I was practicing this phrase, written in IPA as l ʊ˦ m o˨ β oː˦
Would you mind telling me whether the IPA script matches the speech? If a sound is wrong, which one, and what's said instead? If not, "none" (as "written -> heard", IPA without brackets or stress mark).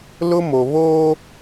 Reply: none